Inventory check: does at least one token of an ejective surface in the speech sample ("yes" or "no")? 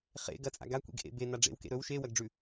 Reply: yes